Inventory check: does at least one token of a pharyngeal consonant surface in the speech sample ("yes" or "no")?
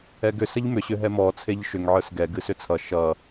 yes